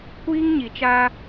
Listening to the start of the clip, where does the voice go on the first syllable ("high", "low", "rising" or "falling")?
high